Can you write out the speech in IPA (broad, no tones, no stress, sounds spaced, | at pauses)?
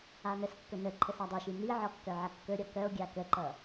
a n ə s kː ɵ n ə ǃʰ ə s a dˤ ɵ ʃ i n i ʕ ɔ kː œ ʕ ʌ kː ɵ ɾʲ ɔ k œ o̯ ɡʲ a k ə ǃ ʌ